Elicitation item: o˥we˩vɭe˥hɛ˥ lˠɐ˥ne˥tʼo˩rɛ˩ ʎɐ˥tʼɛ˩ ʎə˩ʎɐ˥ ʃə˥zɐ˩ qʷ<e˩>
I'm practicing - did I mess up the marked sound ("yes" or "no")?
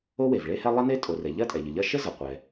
yes